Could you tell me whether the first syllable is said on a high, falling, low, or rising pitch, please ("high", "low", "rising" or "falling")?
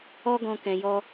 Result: high